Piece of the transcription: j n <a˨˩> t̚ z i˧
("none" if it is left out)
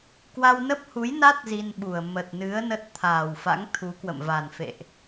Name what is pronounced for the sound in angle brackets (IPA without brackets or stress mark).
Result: a˦˥